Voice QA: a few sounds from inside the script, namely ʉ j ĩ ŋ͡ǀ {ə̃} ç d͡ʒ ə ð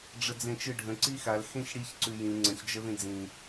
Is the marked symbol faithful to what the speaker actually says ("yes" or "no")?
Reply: yes